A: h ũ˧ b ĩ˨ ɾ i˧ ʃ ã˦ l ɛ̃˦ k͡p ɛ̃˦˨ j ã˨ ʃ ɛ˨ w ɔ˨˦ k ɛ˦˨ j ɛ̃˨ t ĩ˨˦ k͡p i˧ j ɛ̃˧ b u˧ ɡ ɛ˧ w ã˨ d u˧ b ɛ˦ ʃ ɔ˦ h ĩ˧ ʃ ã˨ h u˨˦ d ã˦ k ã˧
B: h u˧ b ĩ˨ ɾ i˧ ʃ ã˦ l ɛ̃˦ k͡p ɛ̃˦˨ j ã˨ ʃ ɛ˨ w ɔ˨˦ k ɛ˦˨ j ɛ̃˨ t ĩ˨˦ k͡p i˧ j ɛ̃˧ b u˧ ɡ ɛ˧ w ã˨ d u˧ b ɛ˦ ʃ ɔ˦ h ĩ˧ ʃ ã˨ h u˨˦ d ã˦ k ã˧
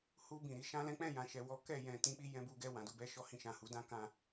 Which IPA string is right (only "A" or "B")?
B